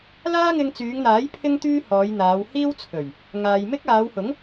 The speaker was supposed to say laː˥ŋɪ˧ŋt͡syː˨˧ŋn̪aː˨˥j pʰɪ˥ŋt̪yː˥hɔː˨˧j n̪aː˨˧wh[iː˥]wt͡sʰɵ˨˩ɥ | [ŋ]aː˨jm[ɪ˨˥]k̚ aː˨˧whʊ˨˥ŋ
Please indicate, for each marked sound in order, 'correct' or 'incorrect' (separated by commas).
correct, correct, incorrect